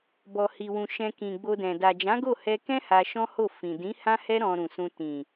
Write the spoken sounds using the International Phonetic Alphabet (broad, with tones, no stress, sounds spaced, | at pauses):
b ɔ˨ h i˨ w ũ˨ ʃ ɛ̃˧ k ĩ˨ ɡ͡b o˧ d ɛ̃˨ d a˨ d͡ʒ ã˨˦ ɡ o˦˨ h ɛ˧ k ɛ̃˦ h a˧ ʃ ɔ̃˦ h o˦˨ f ĩ˨ d ĩ˨˦ h ã˦ h ɛ˦ ɾ ɔ̃˧ ɾ ũ˨ s ũ˧ t ĩ˨